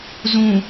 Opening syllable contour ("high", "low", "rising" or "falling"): low